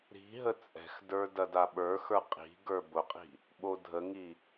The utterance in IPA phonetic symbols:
ɾ i̤ ɦ ə t͡sʼ ɛ̤ x d ə˞ d ɐ d a ɓ ə˞ x ə˞ qʼ i̤ ɡ ə˞ b ʊ qʼ i̤ | ɓ o dʱ ə ŋ i

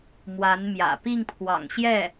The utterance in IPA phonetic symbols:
m w a˧˥ n m j ä̰˨˩ p i˥˩ ŋ pʰ w ɑ̰˨˩ ŋ ɕ j ɛ˥˩

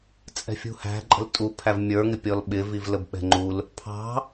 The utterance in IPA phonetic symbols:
t͡sʼ ɛ̤ fʲ ṳ h æ̤ ǃʼ ə̤ l tʼ u pʰ æ v mʲ ə˞ ŋ ɪ pʲ ɔ l ɓ ɪ v i v l ə b ɓ ɛ̤ ŋ͡ǃ u l | pʰ ɑ̤

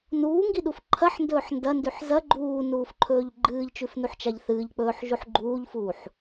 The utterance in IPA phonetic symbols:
n uː ŋ ɡ i ɗ u f ǃʰ ɐ ħ n d ɵː ħ n d ɐ n d ʉ ħ z ɐ ɡ͡ǃ uː n uː f ǃʰ ɵː ʎ ɡ͡ǃ ɨː ʎ t͡ʃ ʉ f n u ħ t͡ʃ a ʎ θ ɨː ʎ k͡p ɵː ħ ʒ u ħ ɡ͡ǃ uː ʎ f uː ħ

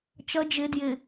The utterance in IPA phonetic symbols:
t͡ʃ ʌ d͡ʒ ɪ d j ɪ

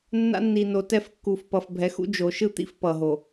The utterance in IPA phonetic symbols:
nː a̰˦ nː i˨ n o˨ t ɛ˦ f kː u˨ f p ʌ˨ f bʱ ɛ˨˦ x ṵ˦ d͡ʒ o˨ ʃ ɯ˦ t̪ ḭ˦ f p ʌ˨ ɦ o˨

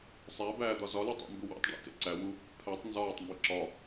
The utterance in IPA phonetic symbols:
sˤ æ b æː d̪ ɒ z ɒ l e tˤ æ̰ m b u w æ̰ tˤ ɖ æ̰ t ḛ ǀ æ w u | pʰ æ tˤ n z ɒː tˤ m b i ǁ ɒ

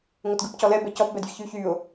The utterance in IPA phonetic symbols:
ŋ o t ɡ ɯ p c ɔ l ɛ b ɛ c ɔ p b ɛ d vʲ ɯ ç y ç y ʊ̯

